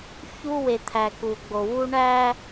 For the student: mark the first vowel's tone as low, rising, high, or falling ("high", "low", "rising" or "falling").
high